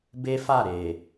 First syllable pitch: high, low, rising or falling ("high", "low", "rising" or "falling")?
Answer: high